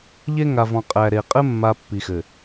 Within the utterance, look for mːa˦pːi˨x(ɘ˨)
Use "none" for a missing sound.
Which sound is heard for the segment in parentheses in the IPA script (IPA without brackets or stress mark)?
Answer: ɘ˨